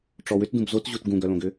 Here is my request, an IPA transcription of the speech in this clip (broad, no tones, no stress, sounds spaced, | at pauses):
ʈ͡ʂ ɔ w ʏ t d ũ b z o t ʑ u t ɡ ũ ɡ œ l õ ɡ ʏ